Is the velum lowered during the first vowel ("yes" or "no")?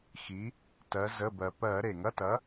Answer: no